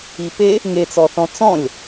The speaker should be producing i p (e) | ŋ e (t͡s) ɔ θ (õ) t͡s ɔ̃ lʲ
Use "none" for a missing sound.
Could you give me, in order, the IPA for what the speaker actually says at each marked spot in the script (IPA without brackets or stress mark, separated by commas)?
e, t͡s, ɔ̃